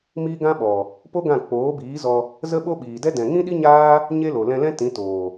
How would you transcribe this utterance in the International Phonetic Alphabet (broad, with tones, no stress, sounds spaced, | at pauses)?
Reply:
m iː˦ ɡ ã˦ ɓ ɔ˨ | p o˦ ɡ ã˦˨ k͡p oː˨˦ b iː˨˦ z ɔ˧ | z ə˦ ɓ o˦ ɓ iː˨ d ɛ˦ d ɛ̃˨ ŋ ĩ˦ ɗ i˦ ɲ aː˦ | ɲ e˦ l o˨ l ɛ̃˧ l ɛ̃˦ t ĩ˨˦ t oː˨